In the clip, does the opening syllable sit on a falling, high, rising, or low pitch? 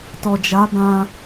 low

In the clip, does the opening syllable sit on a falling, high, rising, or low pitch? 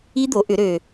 high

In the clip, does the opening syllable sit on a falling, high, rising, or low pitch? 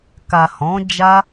low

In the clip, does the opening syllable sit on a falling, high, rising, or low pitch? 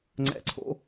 rising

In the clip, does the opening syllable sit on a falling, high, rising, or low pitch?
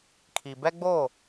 low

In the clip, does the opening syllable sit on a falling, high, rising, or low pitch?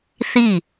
falling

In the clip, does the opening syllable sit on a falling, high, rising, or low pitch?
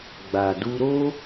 low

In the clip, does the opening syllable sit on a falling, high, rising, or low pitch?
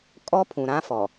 high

